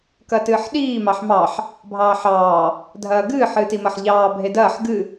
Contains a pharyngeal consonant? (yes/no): yes